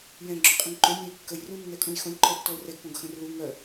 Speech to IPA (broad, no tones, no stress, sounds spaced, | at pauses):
j ɛ̃ ɡ͡ǁ ø qʼ ə̃ ŋ ǃ ø nʲ ə̃ ɪ̯ kː ə j r ũ nː ɛ kʼ ũ j x õ lʲ ǃ ɔ ʊ̯ tː ɔ ʊ̯ r ɛ ɡ p õ ɡ x ə̃ r l u ŋ œ